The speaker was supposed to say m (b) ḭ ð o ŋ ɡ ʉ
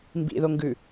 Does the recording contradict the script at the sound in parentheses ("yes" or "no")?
no